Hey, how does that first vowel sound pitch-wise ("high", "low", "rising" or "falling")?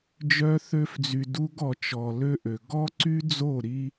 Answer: high